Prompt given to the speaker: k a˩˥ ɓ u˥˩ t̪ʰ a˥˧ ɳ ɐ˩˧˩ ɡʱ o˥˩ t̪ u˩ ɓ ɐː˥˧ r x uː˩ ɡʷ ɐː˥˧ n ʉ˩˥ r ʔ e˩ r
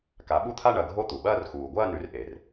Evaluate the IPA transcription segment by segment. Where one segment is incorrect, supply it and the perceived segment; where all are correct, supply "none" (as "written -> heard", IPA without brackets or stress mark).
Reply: none